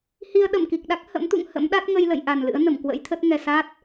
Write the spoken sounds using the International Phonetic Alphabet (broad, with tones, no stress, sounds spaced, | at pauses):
h i˧ ə̯ ɗ ə˧˩ m k i˨˩ k̚ ɗ a˦˥ k̚ h ə̰˧˥ m t̪ ṵ˧˨ ŋ h ə̰˧˥ m ɗ a˦˥ t̚ ŋ ə˧ j l ə̰˧˨ j ʔ a˨˩ n l ɨ̰˧˥ ə̯ n ə˧˩ m k w ə̰˧˥ j t̪ʰ ə˦˥ t̚ ŋ ɛ˨˩ s a˦˥ t̚